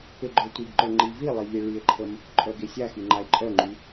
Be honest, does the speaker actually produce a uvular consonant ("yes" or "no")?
no